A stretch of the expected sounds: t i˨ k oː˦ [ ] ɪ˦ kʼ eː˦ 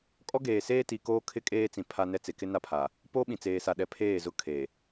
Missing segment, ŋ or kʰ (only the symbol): kʰ